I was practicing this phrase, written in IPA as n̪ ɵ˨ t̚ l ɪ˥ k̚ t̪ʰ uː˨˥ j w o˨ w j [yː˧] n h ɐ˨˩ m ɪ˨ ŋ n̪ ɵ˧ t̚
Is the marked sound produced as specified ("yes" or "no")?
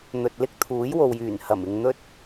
no